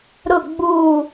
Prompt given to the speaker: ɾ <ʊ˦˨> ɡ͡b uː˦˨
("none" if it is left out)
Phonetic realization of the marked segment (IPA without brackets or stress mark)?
ʊ˦˨